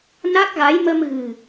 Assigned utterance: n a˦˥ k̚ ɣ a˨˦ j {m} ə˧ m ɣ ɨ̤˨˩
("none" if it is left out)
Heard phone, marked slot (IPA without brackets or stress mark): m